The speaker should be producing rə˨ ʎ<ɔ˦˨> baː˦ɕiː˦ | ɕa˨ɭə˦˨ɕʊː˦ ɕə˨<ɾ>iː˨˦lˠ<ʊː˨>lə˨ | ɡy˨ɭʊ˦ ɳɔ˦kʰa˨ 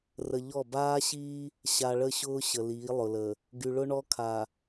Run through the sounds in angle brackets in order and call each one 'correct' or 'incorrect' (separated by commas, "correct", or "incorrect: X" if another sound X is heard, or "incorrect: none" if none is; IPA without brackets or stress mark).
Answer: correct, incorrect: l, incorrect: ʊ˨